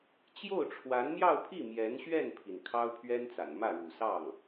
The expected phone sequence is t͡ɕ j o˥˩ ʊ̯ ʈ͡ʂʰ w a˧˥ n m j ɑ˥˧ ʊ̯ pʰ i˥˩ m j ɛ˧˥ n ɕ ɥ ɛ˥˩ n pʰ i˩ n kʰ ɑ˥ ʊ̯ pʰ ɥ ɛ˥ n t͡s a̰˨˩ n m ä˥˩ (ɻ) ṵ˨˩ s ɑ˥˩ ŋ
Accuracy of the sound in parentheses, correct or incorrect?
correct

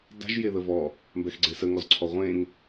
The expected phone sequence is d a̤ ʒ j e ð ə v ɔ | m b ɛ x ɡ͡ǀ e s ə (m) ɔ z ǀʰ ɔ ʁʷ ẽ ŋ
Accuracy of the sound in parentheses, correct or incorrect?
incorrect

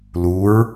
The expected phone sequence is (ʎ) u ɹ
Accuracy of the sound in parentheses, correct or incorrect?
incorrect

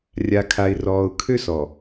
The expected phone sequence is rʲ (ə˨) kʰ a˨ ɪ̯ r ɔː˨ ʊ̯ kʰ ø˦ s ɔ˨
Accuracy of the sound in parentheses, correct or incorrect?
incorrect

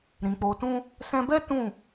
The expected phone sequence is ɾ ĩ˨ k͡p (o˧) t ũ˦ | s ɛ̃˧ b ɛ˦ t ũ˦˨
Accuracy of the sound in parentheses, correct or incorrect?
correct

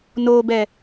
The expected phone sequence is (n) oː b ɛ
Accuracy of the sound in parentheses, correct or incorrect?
correct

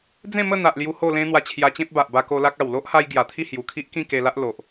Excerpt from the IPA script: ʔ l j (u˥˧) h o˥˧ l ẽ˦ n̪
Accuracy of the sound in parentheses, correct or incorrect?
incorrect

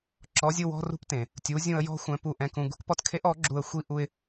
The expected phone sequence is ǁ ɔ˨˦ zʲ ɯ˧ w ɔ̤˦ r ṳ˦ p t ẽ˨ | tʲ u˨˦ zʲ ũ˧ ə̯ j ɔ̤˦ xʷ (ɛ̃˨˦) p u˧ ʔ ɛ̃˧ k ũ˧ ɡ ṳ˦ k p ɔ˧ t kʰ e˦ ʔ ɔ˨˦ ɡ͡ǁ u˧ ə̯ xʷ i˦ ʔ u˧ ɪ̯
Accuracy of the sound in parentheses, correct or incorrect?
correct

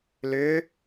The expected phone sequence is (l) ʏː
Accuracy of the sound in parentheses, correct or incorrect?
correct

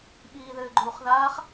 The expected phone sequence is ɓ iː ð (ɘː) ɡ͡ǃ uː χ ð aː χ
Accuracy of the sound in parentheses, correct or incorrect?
correct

